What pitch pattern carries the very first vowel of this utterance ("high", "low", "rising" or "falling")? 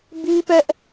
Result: high